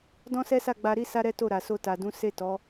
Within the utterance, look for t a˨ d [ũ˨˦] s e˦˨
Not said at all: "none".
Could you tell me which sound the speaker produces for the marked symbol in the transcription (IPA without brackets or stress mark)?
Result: ũ˨˦